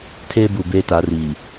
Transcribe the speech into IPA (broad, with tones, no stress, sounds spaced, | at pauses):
tʰ eː˦ b u˨ b eː˦ t a˨˦ r iː˨